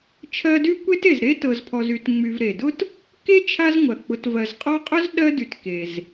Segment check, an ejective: present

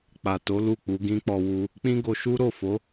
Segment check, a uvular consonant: absent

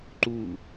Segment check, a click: present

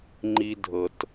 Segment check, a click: present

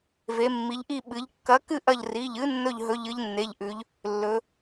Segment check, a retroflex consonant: absent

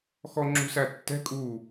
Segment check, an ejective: present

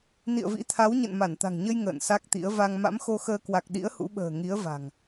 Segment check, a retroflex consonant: absent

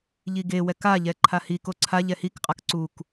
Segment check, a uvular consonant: present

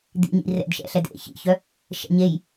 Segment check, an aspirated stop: absent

